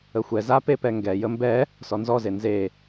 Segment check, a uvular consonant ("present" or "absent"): absent